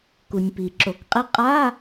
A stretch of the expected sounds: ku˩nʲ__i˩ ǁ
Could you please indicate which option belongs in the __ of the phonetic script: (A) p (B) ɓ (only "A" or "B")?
A